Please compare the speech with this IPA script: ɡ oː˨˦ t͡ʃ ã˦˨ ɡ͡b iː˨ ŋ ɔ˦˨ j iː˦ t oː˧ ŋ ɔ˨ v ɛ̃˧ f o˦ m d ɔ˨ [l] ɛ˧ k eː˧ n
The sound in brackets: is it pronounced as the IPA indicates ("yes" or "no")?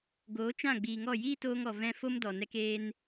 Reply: no